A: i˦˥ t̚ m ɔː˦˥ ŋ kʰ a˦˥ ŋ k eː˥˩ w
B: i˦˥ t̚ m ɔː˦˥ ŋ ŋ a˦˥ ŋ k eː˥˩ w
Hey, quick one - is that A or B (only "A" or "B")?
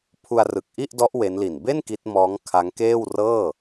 A